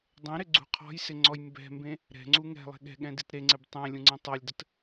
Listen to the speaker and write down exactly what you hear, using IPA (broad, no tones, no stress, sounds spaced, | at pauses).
dˤ ẽ ɾ ɪ ɡ͡ǀ ṳ qʰ ɔ̤ j s ɪ ŋ͡ǀ ɔ j m b ɛ̤ m b ẽ | ɾ ɛ̤ ŋ͡ǀ u ŋ ɛ̤ lˠ e̤ ɠ ɛ̤ ɠ ɛ̃ d i t ɾ e ŋ͡ǀ e b tˤ ẽ lʲ ũ ŋ͡ǀ ẽ tˤ ɤ lʲ d ə t